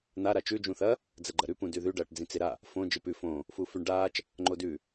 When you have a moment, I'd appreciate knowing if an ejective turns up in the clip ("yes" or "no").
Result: no